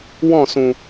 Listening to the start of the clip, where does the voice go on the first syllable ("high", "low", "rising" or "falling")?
falling